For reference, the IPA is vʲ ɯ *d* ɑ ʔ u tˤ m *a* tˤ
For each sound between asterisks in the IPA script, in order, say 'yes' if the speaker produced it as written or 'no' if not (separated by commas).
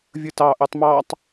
no, no